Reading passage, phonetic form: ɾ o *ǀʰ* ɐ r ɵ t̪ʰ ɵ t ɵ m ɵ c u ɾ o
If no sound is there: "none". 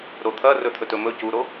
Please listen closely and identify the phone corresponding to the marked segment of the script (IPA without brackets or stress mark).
t̪ʰ